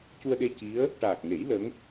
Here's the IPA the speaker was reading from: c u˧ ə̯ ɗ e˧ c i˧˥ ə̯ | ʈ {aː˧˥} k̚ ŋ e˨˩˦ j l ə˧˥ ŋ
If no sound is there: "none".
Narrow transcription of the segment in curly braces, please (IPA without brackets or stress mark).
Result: aː˨˩